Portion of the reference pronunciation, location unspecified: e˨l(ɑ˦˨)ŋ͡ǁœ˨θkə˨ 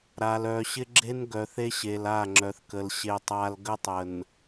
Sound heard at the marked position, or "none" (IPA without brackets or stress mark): a˦˨